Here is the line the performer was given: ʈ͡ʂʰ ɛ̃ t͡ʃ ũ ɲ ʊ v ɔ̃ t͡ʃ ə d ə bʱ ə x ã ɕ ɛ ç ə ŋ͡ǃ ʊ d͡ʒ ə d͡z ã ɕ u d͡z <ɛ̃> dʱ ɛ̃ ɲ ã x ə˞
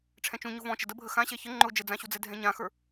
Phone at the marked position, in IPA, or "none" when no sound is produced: ɛ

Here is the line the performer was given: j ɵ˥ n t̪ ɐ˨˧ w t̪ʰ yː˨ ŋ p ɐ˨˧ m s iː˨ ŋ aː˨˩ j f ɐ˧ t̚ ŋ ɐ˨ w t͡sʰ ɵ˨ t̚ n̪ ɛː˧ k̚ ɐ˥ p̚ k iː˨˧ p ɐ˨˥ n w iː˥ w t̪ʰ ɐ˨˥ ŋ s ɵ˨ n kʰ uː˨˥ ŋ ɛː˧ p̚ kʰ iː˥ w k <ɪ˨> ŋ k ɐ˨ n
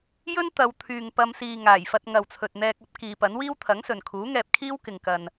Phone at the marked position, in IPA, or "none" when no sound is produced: ɪ˨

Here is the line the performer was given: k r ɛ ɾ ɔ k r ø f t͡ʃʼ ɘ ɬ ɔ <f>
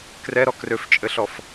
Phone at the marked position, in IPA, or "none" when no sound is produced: f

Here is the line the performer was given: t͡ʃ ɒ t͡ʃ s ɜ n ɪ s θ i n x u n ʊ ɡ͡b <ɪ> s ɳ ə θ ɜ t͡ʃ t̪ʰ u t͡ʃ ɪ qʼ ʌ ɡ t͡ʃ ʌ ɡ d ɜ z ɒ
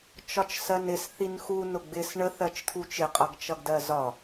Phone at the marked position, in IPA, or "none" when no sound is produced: ɪ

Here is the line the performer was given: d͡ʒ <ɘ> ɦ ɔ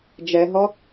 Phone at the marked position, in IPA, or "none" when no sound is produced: ɛ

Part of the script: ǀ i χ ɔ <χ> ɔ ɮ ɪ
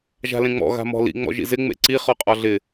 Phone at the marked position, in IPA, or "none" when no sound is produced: qʼ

